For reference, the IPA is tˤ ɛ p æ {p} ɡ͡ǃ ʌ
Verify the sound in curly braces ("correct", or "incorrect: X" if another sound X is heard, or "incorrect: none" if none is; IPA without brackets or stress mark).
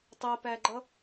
incorrect: none